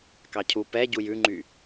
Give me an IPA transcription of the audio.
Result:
k ɑ cʰ u p ɛ ɟ u j ʉ ŋ͡ǃ y

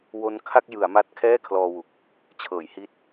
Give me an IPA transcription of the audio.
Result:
w o˦˥ n kʰ a˥˩ k̚ j ɯ˩˦ a̯ m a˦˥ t̚ kʰ ɛː˥˩ kʰ l ɔː˧ w u˨˩ k̚ | t͡ɕʰ ɤː˩˦ j h i˦˥ t̚

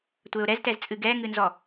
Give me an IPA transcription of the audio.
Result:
tʷ ɘː ʊ̯ ɾ ɛ z t ɛ z t͡sʼ ɨ ɡ ɛː ŋ ɨ n z ɔ

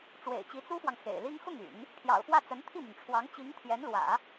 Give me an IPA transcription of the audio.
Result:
ʈ͡ʂ w ḛ˨˩ ɪ̯ t͡ɕ i˧˥ t͡s u˥ f w ɑ˨ ŋ x ḛ˨˩ ɪ̯ l i˥ ŋ x ʊ˥˩ ŋ y̰˨˩˦ n | pʰ j ɑ̰˨˩ ʊ̯ f w ä˥˩ t͡s ə˧˥ n t̪ʰ i˥˩ m y˩ n ʈ͡ʂʰ w ɑ˧˥ ŋ t͡ɕ i˧˥ ŋ t̪ʰ j ɛ˧˥ n l w ä̰˨˩˦

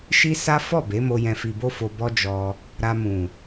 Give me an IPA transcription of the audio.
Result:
ʃ i˦ s a˦ f ɔ˦˨ b e˨˦ m o˧ j ɛ̃˧ f i˧ b o˦ f o˧ b ɔ˦ d͡ʒ ɔ˧ | ɾ a˧ m ũ˨

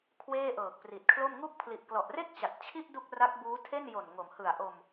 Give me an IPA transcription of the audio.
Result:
kʰ w eː˥˩ ʔ ɤː˨˩ k̚ p r i˨˩ t̚ kʰ l o˥˩ m ŋ u˦˥ k̚ pʰ l i˨˩ ʔ k l ɔ˨˩ ʔ r e˥˩ k̚ t͡ɕ a˨˩ t̚ t͡ɕʰ i˥˩ ʔ d u˥˩ k̚ r a˦˥ k̚ b uː˦˥ tʰ e˥˩ n j o˨˩ n ŋ o˩˦ m h ɯ˨˩ a̯ ʔ o˧ m

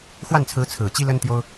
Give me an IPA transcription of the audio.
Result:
x w a˥˩ n t͡sʰ ɹ̩˧˥ t͡sʰ ɹ̩˨˩ t͡ɕ i˥ l ə˥ n t̪ j o˥ ʊ̯

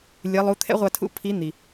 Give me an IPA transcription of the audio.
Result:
lʲ ɯ˩˧ lˠ u˩˧ t̪ʰ ɛ̰˥ ʁʷ a˧ tʰ ṵ˧˥ pʰ i˧˥ n̪ i˩

